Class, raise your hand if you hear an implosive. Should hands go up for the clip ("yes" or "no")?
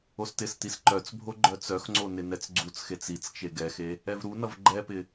no